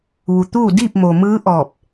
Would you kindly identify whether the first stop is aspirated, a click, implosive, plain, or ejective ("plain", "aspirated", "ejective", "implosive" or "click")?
plain